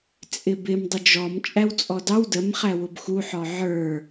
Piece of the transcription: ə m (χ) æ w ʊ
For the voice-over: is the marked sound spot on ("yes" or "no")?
yes